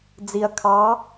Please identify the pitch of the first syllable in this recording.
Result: low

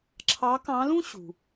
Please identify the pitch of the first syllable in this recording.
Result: rising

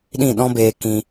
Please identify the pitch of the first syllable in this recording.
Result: falling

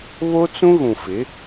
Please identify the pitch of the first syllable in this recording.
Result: high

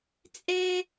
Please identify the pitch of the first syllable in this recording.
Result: high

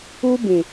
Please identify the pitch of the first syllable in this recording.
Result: high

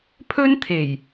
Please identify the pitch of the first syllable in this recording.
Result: high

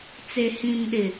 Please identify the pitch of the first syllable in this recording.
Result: low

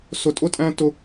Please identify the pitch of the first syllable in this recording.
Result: high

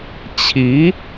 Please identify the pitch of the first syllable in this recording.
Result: rising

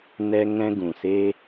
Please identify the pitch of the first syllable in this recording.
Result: high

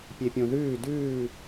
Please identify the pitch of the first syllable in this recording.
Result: low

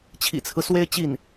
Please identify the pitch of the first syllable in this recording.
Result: low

